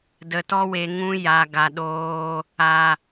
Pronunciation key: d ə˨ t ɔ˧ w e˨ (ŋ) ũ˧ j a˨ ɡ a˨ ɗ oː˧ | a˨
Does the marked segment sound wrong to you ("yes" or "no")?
no